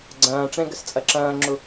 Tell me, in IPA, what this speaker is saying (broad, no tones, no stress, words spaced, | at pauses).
ɡ͡ǀɐ̃ːʈ͡ʂɛ̃ɡəs t͡sʼɐǁɐ̃ːŋ͡ǁu